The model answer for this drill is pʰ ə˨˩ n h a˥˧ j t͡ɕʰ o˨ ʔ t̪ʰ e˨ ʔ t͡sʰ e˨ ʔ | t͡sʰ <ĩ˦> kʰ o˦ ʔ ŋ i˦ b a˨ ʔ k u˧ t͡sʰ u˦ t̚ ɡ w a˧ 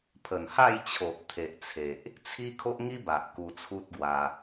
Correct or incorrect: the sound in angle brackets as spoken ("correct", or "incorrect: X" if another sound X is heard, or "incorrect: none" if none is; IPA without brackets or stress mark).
incorrect: i˦